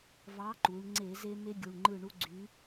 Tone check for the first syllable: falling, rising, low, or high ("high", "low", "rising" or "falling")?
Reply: rising